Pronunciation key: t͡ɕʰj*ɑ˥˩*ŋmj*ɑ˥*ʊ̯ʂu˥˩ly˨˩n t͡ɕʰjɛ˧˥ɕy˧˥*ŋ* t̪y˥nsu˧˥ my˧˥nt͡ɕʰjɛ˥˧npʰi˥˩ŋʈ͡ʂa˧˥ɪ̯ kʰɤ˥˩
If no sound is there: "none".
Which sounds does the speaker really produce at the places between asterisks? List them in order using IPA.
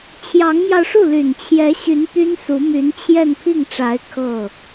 ɑ˧˥, ɑ˧, n

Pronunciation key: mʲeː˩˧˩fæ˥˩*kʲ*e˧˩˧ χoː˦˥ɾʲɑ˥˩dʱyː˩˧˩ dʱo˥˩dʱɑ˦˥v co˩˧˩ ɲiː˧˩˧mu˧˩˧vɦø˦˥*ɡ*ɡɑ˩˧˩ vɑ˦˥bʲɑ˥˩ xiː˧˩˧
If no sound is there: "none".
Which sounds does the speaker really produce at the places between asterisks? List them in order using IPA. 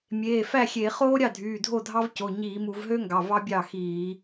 xʲ, ŋ

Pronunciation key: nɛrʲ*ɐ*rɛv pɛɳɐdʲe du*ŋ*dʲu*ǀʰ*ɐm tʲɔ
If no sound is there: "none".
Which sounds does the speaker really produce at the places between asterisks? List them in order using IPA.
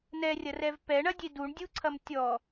ɐ, ɳ, ǀʰ

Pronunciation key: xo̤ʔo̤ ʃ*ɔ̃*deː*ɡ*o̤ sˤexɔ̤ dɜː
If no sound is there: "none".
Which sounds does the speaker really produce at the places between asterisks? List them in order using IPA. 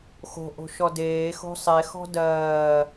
ɔ, x

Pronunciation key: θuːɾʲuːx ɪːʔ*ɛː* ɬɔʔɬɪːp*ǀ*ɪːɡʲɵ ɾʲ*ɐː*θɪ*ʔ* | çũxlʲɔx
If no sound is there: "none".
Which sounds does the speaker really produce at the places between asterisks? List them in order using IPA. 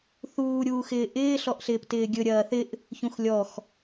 ɪː, t, ɐː, ʔ

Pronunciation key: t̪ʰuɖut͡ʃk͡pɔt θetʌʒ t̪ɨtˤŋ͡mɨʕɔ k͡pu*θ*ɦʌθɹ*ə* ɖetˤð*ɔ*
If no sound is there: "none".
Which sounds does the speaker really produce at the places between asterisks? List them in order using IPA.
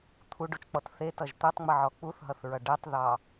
θ, ʌ, ɑ

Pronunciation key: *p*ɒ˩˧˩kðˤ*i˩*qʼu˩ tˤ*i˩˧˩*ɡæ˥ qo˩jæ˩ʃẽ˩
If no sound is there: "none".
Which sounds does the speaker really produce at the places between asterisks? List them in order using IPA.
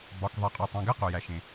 b, i˩, ĩ˩˧˩

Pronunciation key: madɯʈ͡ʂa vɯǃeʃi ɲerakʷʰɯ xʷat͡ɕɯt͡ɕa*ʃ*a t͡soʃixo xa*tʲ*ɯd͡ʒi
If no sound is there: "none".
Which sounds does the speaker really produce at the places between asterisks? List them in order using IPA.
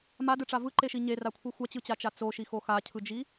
t͡ʃ, cʰ

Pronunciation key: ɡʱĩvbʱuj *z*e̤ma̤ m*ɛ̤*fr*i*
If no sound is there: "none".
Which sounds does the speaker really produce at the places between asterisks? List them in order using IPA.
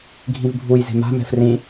z, ɛ̤, ĩ

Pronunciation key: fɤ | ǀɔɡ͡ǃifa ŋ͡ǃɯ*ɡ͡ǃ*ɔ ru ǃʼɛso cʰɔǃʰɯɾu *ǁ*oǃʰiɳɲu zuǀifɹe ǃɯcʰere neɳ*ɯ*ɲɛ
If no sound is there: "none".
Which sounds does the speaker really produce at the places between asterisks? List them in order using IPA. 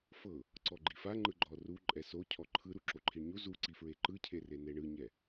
ɡ͡ǃ, ǁ, ɯ

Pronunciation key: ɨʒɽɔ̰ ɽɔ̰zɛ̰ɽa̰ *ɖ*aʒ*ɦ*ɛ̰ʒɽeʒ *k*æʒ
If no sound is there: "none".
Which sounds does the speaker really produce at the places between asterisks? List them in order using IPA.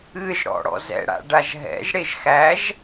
ɖ, ɦ, x

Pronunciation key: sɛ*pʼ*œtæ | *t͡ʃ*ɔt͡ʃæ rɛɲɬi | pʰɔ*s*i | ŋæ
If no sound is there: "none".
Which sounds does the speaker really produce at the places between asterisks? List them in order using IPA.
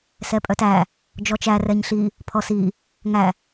pʼ, d͡ʒ, s

